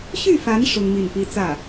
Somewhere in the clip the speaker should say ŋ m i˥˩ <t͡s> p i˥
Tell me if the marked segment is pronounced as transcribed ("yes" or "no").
no